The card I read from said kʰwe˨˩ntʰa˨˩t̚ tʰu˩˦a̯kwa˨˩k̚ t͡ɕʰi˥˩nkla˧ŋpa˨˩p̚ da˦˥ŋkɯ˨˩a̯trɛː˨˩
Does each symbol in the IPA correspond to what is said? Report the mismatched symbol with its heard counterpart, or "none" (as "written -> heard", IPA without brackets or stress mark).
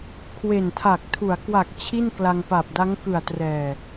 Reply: t̚ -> k̚